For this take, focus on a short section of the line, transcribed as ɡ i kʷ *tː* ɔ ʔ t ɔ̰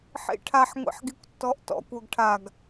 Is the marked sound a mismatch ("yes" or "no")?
no